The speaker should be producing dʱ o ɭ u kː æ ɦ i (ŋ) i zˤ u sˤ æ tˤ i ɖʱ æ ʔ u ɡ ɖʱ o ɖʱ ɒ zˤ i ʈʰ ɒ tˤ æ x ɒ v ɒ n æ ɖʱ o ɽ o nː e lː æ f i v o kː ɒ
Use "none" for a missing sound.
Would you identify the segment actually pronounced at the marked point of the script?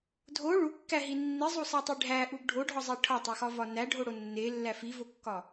nː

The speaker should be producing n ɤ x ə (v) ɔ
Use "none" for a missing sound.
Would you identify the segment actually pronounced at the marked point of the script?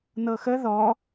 ð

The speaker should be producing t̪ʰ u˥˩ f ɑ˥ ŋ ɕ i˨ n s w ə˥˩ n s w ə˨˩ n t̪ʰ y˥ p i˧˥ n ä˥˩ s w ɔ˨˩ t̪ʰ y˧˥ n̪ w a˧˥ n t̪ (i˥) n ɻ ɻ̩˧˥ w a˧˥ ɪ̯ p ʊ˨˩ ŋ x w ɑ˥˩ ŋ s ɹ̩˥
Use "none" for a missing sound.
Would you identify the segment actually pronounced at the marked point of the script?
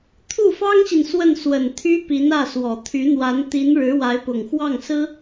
i˧˥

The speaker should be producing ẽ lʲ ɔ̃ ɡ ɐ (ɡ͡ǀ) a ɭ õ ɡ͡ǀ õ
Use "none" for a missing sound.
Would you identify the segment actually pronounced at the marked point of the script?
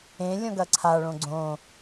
ǀʰ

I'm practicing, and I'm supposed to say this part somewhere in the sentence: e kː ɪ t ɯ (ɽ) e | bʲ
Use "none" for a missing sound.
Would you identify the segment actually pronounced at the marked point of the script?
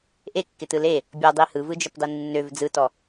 l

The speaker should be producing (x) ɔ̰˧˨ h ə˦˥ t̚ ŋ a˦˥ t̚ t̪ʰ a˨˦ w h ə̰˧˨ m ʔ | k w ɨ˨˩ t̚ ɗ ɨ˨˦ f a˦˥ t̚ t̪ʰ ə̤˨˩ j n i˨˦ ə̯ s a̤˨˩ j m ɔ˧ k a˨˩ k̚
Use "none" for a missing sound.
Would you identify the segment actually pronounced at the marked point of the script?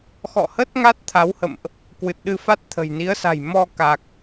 x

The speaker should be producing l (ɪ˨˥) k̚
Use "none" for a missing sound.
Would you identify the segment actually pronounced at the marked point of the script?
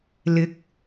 ɪ˨˥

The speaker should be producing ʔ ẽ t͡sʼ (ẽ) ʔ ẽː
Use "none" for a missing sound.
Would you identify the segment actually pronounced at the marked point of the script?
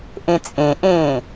ẽ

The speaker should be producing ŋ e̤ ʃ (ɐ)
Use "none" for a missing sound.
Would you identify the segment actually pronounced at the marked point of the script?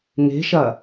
ɐ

